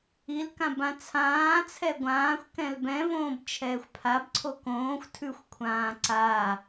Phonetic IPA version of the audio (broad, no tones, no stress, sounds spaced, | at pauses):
i l k ã b ã t͡sʰ ãː t͡sʰ ɛ ɡʷ ãː xʷ k ɛ̃ l b ɛ̃ v õː b t͡ʃʰ ɛː xʷ pʰ a b ǀʰ o k õː xʷ tʰ ʉ xʷ kʷʰ ãː ǀ a